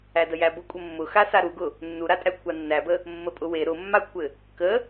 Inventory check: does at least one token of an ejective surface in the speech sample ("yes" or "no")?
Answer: yes